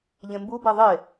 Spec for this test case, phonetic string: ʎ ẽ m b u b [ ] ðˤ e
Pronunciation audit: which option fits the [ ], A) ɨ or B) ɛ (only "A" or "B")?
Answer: B